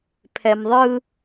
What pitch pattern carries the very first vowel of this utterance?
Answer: low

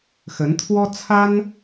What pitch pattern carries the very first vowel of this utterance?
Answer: rising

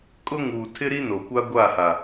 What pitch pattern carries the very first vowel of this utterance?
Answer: high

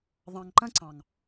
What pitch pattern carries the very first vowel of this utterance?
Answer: low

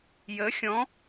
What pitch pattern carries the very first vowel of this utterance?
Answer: rising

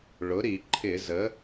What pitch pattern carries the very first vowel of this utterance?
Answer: rising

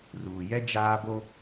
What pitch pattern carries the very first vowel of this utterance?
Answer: low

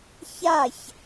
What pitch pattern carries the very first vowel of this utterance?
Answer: falling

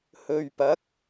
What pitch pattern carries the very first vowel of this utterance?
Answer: low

